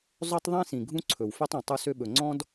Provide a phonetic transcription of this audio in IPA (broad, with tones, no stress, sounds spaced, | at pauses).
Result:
zˤ ø˦ tˤ ðˤ ĩ˦ s ĩ˨ ɡʱ ũ˦ ǀʰ ɵ˨ w f ø˦ tˤ ũ˨ tˤ u˦ s ø˦ ɓ ɵ˨ ŋ͡ǀ ɔ̃˦ d